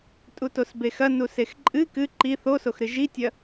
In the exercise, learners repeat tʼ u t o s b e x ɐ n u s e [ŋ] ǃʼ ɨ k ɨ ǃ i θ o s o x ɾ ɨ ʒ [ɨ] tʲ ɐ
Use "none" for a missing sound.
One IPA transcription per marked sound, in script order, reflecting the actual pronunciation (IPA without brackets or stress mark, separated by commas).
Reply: x, i